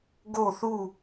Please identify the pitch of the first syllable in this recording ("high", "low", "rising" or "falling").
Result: falling